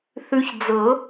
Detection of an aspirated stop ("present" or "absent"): absent